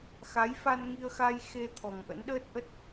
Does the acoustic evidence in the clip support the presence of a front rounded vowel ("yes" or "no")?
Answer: no